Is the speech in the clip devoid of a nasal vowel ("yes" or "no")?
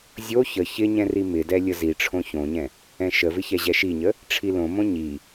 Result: no